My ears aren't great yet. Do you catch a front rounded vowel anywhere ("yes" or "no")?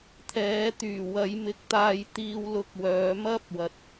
yes